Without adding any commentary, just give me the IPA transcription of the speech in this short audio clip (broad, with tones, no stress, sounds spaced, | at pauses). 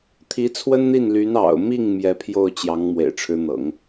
t̪ʰ i˧˥ t͡sʰ w ə˥ n n̪ i˥˩ n l y˧˥ n ɑ̰˨˩ ʊ̯ m i˥˩ ŋ m j ɛ˧˥ pʰ j o˥˩ ʊ̯ t͡ɕ j ɑ˧˥ ŋ m w ḛ˨˩ ɪ̯ ʈ͡ʂʰ ɻ̩˧˥ n̪ ɤ̰˨˩˦ ŋ